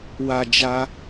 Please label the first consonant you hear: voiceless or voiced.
voiced